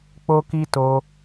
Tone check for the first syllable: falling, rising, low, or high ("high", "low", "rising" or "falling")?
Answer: high